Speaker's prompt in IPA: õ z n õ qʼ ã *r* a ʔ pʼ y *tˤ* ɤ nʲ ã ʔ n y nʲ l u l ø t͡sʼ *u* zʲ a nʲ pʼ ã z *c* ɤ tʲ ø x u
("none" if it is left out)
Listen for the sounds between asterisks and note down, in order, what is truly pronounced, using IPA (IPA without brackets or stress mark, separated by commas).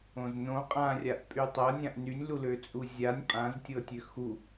rʲ, tˤ, u, tʲ